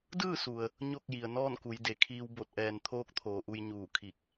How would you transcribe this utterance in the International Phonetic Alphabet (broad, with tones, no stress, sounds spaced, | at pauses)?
d ɯː˥˨ s u˩ ə̯ | ɲ o˥˨ k̚ j i˩ ə̯ n ɔː˥˨ n k u˩˧ j d e˩ kʰ iː˧ w b o˧˩ t̚ ʔ ɛː˩ n t̪ʰ oː˧˥ k̚ t̪ʰ oː˩ ʔ u˧ j ɲ uː˧˩ kʰ i˧˩ k̚